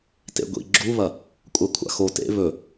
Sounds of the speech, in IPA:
tḛɡʷḭ ɡ͡ǁuβɐ | kʷʼakʷʰa̰xo tḛ βɵ

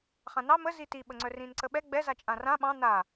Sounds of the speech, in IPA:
χãnɑ məzi tiɓəŋ͡ǀœ rĩnǀəɓɛ ɡ͡bɛzat͡ʃʼã rã ɓɑ̃ na

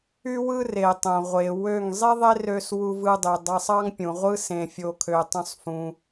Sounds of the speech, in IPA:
y˦wɯ˦ re˨ tˤõ˨ ʁʷe˨wø˦˨ŋ zˤi˦ðˤe˦rø˧s wu˧vɯ˧dˤø˨ dˤɑ˧sˤɑ˦ŋpʲũ˨ʁʷɯ˦ sẽ˧fʲo˧kʰø˧ tˤõ˦sˤfũ˧

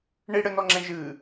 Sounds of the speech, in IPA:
ɳiɽɘnɔŋ͡ǁɛ̃ ʒɨ

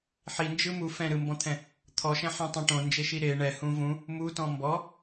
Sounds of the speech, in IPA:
ħind͡ʒɯ mu fɛ̃ɾɯmbɔ̃t̪ʰɛ̃ | t̪ʰɔʃɛ̃ħɛ̃tˤɛ̃ ʈõnd͡ʒeʃi ɾe ɳɛhũ vũ | mutɔ̃ mbɔ

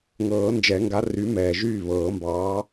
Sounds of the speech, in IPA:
ŋɤː˨˩˦nd͡ʒɛ˨˩˦ŋɡa˨˥ ry˨˥mɛː˩ʒyː˥˩ βɤː˨˩˦mbɑː˨˥

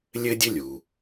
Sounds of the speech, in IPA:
lʲɘ˥dʲɘ˥ lʲu˩

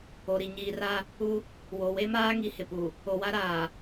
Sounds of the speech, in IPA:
o˨ ɾi˨ ɲiː˨ra˦ | u˦ | wo˨we˦maː˦ ŋi˨hɪ˨pu˨ | o˨wa˦ɾaː˨

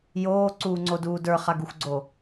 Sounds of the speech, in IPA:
joːǀuːŋ͡ǀoduː də˞χaɡuxʷɡ͡ǀo

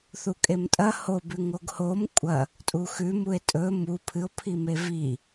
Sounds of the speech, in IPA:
θukʼemtʼɐ hob ʉŋoɡhom kʷʼɐ | tʼuxʉ mue̯tʼɵ mu pʰɨo̯ pʰimevi

